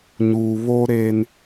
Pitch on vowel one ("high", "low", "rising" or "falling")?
low